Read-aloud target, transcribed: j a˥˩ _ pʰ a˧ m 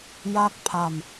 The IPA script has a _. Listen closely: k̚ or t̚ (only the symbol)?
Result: k̚